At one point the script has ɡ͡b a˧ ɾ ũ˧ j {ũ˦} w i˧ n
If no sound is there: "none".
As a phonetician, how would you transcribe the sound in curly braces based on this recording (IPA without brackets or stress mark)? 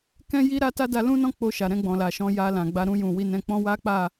ũ˨